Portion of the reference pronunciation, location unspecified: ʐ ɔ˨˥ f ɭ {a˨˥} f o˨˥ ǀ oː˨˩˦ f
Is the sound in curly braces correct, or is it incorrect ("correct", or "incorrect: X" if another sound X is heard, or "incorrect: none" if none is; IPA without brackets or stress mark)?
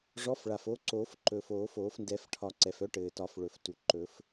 incorrect: a˩